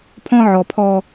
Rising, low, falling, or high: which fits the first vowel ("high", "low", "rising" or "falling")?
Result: high